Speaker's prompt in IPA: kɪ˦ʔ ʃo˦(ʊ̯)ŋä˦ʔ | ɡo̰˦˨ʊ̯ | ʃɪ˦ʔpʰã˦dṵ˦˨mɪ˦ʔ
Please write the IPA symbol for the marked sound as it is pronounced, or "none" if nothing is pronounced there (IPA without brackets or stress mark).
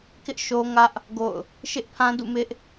none